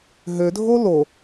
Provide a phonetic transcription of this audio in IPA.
ɦødʱo lo

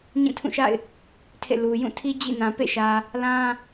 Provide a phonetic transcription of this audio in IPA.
ɲĩ˦˨tʰũ˦˨ʃa̰˦˨ɪ̯ | tʰḛ˦˨lu˨ jũ˦˨tʰi˦ d͡ʑḭ˦˨ nã˨ pḛ˦˨ʃä˨ | lã˦

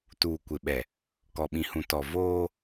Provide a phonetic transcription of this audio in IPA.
tuː˨kʷɪ˨ɓɛ˨ | kɔ˨ɓĩ˨hũ˨ tɔ˨ voː˦

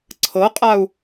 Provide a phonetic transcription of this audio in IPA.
ǀʰɤqʼau̯

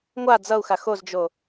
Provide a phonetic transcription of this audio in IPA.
ŋʷa d͡zʌu̯xa xozd͡ʒo

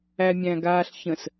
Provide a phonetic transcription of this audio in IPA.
æmʲæ̃ɡaːɬçə̃s

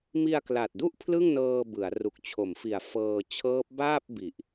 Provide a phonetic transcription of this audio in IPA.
mi˧a̯kla˨˩t̚du˥˩ʔ pʰlɯ˥˩ŋnɤː˧ bɯ˩˦a̯ ru˨˩k̚t͡ɕʰo˩˦mfi˨˩a̯ fɤː˧ t͡ɕʰɤː˦˥p̚ baː˥˩p̚ bi˨˩ʔ

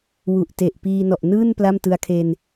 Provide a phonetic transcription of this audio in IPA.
wu˨˩ʔte˨˩ʔ piː˧ nɔ˨˩ʔnɯː˥˩n pla˥˩mtɯ˧a̯kʰe˧n

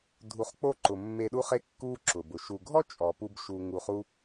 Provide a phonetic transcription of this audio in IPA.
dʱu˨χk͡po˧ ǃʊ˨mːe˧ɗu˦χe˦ kːu˦ǁʊ˨bʊ˨ ʃu˨ɡʱɔ˦ t͡ʃʼɔ˨pu˦bʃu˧ ŋu˧χu˦

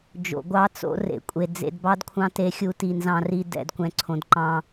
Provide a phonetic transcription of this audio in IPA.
d͡ʒo̰˨ɡʷɑ˦t͡so̰˦ rḛ˨kʷʼe˨ d͡zḛ˨dbɑ˦dkʷʰɑ̃˦ te˦xʲu˦ti˨ nzɑ̃˦ri˦ dɛ̰˨dkʷɛ̃˨ǀʰõ˨d ǃɑ̃˦

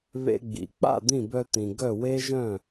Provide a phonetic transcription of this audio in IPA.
βḛ˧ɡ͡bḭ˩ k͡pa̰˥˩ d̪ĩ˥˩bœ˧t̪ĩ˩ ɡœ˥˩we˥ ʒœ̃˥˩

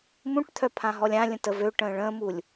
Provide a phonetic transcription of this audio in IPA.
mũʈt̪ʰœpʰã ɦɔlʲãlʲə̃ təvøʈə̃ː ɭə̃ːmulʲ

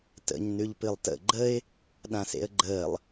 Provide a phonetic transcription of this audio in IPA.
tə̰ɲ nʉʎpɨlˠtə̰ ɡ͡ǃəɪ̯ | ɗãsḛə̯ɡ͡ǃəːlˠ

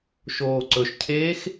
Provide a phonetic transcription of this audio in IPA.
ʃoːǀɵʃcʰeːx

